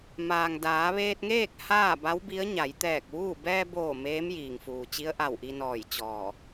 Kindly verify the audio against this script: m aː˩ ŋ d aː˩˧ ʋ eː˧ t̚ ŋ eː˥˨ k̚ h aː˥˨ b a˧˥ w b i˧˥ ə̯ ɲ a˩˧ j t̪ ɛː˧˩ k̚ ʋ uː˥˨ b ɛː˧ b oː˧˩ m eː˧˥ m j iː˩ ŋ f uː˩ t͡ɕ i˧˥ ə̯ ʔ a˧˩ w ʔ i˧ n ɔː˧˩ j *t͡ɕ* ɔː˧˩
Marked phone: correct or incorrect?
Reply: correct